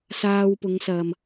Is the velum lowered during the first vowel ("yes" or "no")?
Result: no